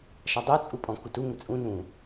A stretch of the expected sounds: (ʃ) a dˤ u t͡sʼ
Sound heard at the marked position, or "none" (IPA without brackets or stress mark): ʃ